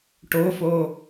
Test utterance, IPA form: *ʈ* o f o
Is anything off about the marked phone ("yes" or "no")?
no